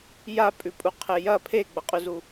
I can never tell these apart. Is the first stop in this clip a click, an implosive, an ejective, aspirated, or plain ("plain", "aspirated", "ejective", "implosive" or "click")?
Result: ejective